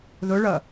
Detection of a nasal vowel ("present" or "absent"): absent